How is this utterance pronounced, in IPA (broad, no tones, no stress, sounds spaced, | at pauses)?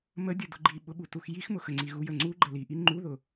m ə dʲ ʊ d ʊ ɡ͡ǃ i ɓ ʊ ɓ u t u x j i x m ʊ x ə ŋ͡ǀ i ɣ u j ə ŋ͡ǀ u ɡ͡ǃ ə l i ʔ i ŋ͡ǃ u ð ʊ